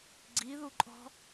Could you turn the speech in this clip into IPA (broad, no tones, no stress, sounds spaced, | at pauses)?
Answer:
ɡ͡ǀ i ð u ǃʼ ɔ̤